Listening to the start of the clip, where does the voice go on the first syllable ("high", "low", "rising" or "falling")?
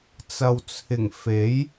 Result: low